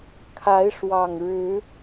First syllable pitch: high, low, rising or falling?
rising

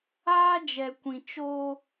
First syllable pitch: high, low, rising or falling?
high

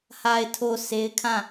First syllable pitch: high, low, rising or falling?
low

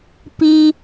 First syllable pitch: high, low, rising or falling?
high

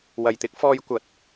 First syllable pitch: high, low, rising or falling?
low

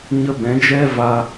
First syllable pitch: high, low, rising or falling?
high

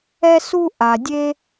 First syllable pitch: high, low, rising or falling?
high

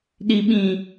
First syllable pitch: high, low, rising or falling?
high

